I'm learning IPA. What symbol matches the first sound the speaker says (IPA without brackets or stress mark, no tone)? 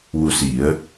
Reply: w